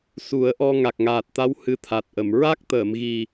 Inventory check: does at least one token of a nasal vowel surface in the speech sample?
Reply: no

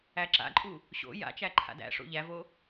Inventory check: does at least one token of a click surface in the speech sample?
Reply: yes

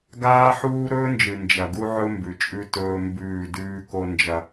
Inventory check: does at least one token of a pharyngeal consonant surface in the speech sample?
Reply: yes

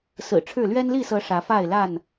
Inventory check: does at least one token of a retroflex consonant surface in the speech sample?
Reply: yes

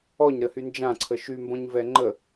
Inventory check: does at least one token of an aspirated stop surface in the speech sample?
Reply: yes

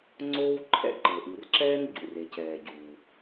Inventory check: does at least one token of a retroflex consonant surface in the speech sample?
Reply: no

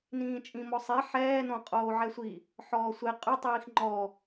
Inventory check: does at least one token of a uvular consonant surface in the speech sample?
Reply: yes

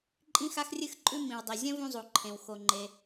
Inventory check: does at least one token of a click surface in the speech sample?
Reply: yes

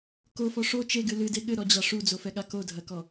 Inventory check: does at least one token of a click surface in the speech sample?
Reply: no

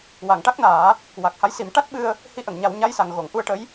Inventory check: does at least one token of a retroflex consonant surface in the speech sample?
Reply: yes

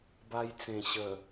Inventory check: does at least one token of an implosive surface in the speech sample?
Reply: no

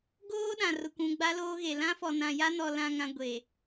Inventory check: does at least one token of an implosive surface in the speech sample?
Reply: yes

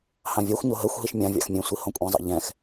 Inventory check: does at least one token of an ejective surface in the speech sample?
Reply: yes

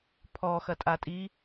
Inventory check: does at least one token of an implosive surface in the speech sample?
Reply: no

